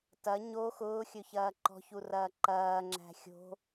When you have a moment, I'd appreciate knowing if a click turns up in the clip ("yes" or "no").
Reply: yes